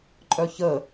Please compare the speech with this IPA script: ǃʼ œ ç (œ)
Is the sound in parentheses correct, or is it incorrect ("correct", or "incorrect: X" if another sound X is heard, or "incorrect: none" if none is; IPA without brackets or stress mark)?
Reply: incorrect: ə